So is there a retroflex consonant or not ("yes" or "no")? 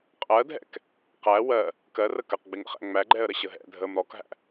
no